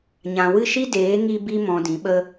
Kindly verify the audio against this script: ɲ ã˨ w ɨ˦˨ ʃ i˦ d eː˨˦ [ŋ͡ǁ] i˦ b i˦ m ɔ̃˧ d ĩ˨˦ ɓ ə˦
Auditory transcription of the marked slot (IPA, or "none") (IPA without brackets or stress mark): ŋ